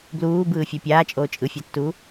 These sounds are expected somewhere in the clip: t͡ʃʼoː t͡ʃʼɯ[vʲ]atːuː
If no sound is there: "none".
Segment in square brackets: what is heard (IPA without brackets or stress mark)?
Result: fʲ